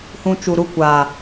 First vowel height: high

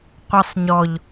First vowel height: mid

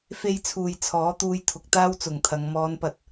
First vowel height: mid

